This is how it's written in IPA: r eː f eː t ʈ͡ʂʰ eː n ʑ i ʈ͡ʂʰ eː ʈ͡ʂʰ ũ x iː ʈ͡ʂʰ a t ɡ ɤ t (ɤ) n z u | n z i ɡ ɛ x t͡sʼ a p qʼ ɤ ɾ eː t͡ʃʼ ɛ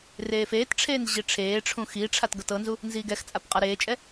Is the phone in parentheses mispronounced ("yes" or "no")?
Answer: no